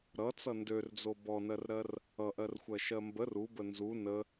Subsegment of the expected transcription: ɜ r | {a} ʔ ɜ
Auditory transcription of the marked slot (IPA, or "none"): ʌ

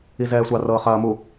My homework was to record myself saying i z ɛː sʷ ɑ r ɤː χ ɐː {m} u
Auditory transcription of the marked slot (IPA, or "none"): m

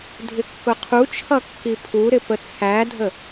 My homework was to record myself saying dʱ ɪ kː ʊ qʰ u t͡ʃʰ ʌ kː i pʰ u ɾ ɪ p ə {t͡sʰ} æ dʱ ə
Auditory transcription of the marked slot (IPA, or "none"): t͡sʰ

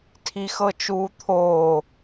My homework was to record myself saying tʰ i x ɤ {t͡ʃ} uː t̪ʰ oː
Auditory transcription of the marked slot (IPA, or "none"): t͡ʃ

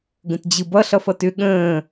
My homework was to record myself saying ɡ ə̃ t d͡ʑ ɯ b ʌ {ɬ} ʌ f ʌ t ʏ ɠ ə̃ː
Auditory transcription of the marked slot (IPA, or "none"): ɬ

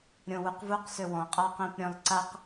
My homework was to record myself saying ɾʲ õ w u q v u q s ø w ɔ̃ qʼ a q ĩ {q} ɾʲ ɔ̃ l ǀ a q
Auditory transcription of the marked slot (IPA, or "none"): p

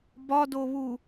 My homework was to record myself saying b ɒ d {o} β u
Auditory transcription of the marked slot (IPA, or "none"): o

